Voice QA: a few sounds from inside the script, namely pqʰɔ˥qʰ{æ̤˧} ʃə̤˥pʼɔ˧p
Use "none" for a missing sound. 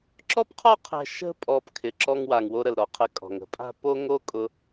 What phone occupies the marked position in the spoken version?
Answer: ɛ̤˧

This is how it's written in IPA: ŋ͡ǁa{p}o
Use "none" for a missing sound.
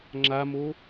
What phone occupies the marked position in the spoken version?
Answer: m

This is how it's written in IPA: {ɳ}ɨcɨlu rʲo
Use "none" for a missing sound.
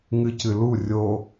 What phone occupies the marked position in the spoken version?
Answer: ŋ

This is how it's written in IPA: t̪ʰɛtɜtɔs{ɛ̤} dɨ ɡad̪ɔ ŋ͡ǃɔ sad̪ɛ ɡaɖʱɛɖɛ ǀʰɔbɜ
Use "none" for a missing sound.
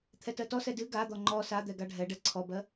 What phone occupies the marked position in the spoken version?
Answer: ɛ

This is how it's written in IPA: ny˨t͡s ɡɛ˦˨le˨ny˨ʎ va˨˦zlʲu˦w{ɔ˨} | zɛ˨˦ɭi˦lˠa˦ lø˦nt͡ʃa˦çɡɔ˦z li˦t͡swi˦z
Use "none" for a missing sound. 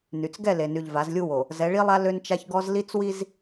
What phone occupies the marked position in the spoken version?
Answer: o˨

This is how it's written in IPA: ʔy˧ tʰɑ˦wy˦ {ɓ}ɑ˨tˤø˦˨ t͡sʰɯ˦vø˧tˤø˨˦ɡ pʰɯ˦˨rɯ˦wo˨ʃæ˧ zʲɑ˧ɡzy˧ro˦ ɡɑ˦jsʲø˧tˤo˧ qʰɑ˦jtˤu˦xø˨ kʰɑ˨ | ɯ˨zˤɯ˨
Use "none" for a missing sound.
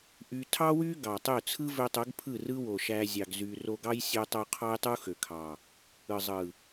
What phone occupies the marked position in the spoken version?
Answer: ɡ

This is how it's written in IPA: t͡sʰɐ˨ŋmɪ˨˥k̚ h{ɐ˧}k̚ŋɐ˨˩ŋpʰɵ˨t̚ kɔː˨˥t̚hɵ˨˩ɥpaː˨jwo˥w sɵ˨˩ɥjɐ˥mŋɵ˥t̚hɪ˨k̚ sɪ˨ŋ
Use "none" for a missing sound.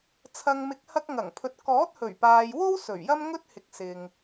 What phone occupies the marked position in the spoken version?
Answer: ɐ˧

